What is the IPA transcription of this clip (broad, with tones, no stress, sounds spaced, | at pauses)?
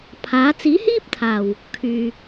pʰ aː˨˥ t͡s iː˨˥ h iː˥ p̚ t̪ʰ aː˨˩ w | kʰ yː˨